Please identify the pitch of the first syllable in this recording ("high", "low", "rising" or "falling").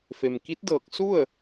low